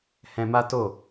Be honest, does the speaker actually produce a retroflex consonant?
no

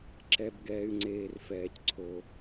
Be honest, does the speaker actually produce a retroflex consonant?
no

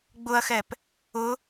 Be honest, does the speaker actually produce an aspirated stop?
no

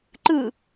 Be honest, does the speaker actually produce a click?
yes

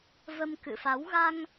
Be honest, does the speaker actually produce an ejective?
no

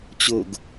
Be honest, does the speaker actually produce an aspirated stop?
no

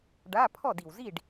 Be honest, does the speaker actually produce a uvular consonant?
no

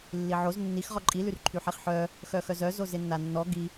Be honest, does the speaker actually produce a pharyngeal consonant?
yes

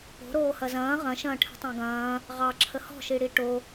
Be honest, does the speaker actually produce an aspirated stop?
yes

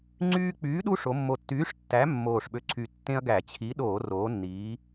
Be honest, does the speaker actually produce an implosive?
yes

